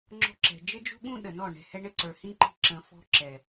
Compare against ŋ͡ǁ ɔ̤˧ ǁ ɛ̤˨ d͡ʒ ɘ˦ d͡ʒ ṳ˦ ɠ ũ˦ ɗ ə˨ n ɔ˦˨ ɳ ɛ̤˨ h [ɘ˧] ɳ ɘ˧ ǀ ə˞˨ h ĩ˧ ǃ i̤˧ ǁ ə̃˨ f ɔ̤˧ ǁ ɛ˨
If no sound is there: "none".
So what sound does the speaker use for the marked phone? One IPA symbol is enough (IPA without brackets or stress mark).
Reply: ɛ˧